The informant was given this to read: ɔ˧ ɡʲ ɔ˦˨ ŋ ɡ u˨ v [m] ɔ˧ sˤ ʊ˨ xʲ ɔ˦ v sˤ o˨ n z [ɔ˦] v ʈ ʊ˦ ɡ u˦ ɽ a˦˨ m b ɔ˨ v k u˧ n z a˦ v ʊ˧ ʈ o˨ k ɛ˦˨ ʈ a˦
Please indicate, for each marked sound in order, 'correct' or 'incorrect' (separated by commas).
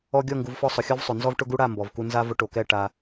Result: incorrect, correct